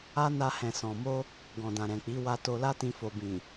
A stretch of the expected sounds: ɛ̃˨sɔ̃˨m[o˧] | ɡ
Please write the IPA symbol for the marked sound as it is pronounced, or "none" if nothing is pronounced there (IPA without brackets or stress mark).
o˧